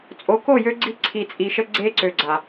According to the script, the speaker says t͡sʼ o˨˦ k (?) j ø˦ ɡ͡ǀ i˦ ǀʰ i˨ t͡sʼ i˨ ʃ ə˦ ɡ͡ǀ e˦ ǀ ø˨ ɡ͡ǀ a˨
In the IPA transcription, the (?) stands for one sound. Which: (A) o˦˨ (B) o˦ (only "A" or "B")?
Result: A